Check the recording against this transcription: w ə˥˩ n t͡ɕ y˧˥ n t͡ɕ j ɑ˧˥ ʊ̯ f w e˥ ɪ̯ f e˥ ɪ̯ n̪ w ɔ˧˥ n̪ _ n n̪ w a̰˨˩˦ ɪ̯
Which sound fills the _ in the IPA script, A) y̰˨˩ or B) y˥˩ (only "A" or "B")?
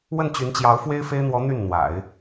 B